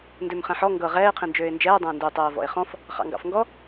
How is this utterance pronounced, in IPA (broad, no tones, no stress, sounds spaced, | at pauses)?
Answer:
n d ø m χ ɛ̃ ħ ɔ ŋ ɡ ɤ ʁ ɛː ɪ̯ qʰ ĩ n d͡ʒ øː ɪ̯ n d͡ʒ ɛː dˤ ɛ̃ ə̯ n d ø tˤ ɜː v ɔ̰ ɪ̯ χ ɔ̃ f | χ ɑ̰ ŋ ɡ ɑ̰ f ŋ ɡ ɔ